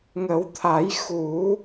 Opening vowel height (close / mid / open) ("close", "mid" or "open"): mid